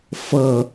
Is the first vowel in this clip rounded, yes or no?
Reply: no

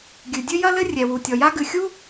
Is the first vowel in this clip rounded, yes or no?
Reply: no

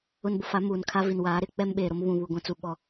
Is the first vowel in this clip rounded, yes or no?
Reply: yes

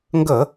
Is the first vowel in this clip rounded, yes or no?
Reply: no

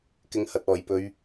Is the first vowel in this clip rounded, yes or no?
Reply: no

